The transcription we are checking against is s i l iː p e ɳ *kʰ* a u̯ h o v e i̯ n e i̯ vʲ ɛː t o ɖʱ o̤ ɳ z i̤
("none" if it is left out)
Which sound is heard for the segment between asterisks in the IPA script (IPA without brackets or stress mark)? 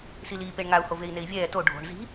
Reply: ŋ